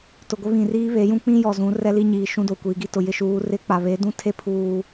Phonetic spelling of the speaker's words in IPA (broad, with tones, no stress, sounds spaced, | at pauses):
t ʊ˨ ɡʷ ɪ˦ β ĩ˨ r iː˦ β e˨˦ j ũ˦ k͡p ĩ˦ j ɔ˨ z ũ˨˦ r ɛ˦ l i˦ ɲ iː˨ ʃ ũ˦ d o˨ kʷ iː˨ ɡ i˦ t ʊ˨ j ɪ˦ ʃ uː˨˦ r ɪ˦ k͡p a˨ β e˨˦ d ũ˦ tʰ e˦ pʰ uː˦